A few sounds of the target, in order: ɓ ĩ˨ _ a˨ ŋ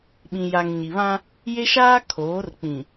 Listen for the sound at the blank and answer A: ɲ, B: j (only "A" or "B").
B